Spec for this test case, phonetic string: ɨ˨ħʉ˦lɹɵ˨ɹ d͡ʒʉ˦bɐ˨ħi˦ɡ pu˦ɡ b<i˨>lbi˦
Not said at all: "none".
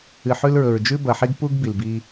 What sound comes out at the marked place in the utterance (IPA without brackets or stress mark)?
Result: i˨